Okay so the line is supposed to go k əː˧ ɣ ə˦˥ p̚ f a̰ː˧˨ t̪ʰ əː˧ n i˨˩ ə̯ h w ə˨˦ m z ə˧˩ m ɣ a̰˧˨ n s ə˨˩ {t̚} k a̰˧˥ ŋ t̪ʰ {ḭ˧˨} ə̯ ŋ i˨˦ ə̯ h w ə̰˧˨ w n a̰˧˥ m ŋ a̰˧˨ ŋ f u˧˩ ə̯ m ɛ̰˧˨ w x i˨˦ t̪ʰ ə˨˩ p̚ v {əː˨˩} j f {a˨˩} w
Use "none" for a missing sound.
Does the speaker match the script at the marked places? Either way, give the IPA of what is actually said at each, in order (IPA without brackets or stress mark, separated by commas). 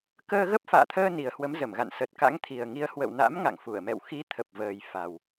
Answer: t̚, i˨˩, əː˨˩, a˨˩